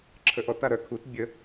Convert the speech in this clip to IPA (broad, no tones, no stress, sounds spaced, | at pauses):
ǁʰ ə ʔ ɔ t a ɾ œ kʰ u t bʲ ə